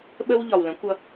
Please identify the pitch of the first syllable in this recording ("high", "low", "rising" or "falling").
high